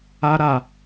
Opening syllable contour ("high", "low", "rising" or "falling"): high